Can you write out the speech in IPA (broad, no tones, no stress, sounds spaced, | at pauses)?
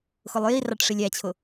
x ʊ lˠ j i r ɑ ʈ ʂ i lʲ æ t͡ɕʰ ʊ